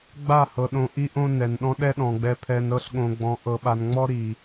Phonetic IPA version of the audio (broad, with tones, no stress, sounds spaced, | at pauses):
ɡ͡b a˦˨ h ɤ˨ ɗ õ˧ ʔ i˦ ʔ õ˦ n ɛ˨ n ɗ ɔ̃˦ ɗ ɛ˦ ɗ ɔ̃˨ ɡ͡b ɛ˧ pʰ ɛ˧ n ɾ ɤ˦ ɬ ɠ õ˧ ɡ͡b ɔ̃˧ ʔ ɤ˧ ɓ a˧ n ŋ͡m ɔ˦ ɾ i˨